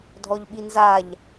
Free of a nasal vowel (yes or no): yes